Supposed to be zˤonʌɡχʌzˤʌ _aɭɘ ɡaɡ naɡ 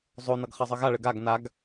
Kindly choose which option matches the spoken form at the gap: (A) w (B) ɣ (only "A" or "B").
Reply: B